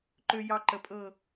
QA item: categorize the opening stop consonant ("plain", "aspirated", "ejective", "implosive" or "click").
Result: click